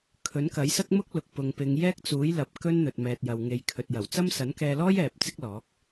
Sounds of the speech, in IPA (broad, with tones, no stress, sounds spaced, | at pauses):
kʰ ɵ˨˥ n k ɐ˨˥ j s ɐ˥ k̚ m ʊ˥ k̚ l ʊ˨ k̚ p ʊ˨ ŋ p ɪ˨˧ ŋ j ɛː˥ k̚ t͡s uː˨˥ j l ɐ˨˥ p̚ k ɵ˥ n n̪ ɵ˨ t̚ m ɛː˨ t̚ j ɐ˨ w ŋ e˨˧ j kʰ ɵ˨ t̚ j ɐ˨˩ w t͡s ɐ˥ m s ɐ˨˥ n k ɛː˧ l ɔː˥ j ɛː˨ p̚ t͡s ɪ˥ k̚ l ɔː˨˥ k̚